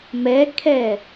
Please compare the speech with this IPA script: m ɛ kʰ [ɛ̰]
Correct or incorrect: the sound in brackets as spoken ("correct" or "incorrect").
incorrect